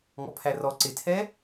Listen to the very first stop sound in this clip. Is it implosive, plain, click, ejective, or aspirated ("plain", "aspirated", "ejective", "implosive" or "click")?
aspirated